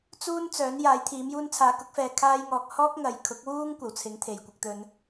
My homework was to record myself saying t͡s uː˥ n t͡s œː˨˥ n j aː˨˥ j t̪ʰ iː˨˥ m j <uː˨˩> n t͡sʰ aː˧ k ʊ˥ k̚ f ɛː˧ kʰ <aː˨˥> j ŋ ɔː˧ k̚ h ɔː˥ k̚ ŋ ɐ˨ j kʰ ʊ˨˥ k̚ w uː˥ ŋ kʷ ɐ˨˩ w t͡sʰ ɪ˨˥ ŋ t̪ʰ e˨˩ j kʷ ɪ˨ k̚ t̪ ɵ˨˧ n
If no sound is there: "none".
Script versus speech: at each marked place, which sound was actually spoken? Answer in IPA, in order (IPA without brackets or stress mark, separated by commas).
uː˥, aː˥